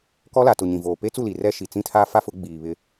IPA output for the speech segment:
k ɔ˦ l a˨ t ʊ˨ ɲ ĩ˨ v oː˨ p e˦ t͡s u˦˨ l i˨ r ɛ˦ ʃ i˨ t͡s ĩ˦ tʰ a˦ f a˦ f ʊ˨˦ ɡ͡b iː˨ β ɪ˦

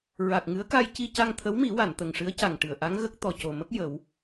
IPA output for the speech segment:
ɹ a˨˩ k̚ ŋ ɨ˧˥ ə̯ k a˧ j c i˧ c a˧ ŋ t̪ʰ ə˧˥ w m i˨˩˦ w a˨˩˨ n t̪ ə˨˩ ŋ ʂ ɨ˧˥ ə̯ c a˨˩ ŋ ʈ ɨ˨˩˨ ə̯ ʔ a˧˥ ŋ ɣ ə˦˥ k̚ t̪ ɔ˨˩ c o˨˩ m ə˦˥ k̚ j ə˨˩˦ w

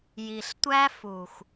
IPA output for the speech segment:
j i˨ ɬ tʷ æ˦ f u˨ x

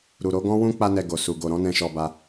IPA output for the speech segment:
ɾ u˨ ɾ o˨˦ ɡ ɔ̃˦ w ũ˦ k͡p a˦ n ɛ˧ ɡ o˨ s u˨ ɡ o˨ ɾ ɔ̃˨˦ n ɛ̃˧ ʃ ɔ˧ b a˧

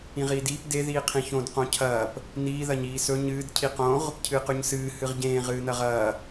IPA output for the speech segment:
ĩ ʁ iː d iː p d e ð iː qʰ ĩ ç õ d q õ cʰ ɐː p | n iː ð ɐ ɲ iː s ɵ ɲ ɨː d cʰ i q õ ʁ | cʰ ɨː q ʉ ɲ s ɨː h ɨ ʁ ɟ ẽː ʁ ɨː n ɐ ʁ ɐː

